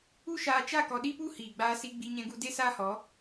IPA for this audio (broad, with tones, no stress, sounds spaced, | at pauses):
u˦ ʃ aː˧ t͡ʃ a˦˨ k ɔ˧ ɗ i˦ p u˦ h iː˨ ɡ͡b aː˧ s i˧ ɡ͡b i˧ ɲ ɛ̃˧ ɡ u˧ d e˦ s aː˦ h ɔ˨˦